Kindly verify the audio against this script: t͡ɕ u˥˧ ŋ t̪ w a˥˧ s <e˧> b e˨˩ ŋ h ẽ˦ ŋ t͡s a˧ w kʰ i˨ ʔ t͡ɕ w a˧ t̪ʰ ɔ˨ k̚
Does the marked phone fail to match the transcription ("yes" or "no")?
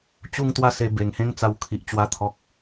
no